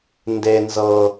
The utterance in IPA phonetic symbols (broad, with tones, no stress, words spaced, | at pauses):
nde˨ nzɤ˨